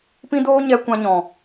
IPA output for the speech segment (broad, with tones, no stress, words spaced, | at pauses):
pĩ˦doː˦ɲɛ˧ kʷã˧ ɲɔ̃˨